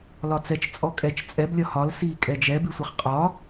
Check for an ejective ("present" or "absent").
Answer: present